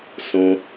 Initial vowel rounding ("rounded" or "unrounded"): rounded